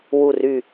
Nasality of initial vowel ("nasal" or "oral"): oral